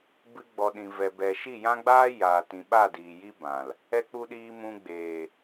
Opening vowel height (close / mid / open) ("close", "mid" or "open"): close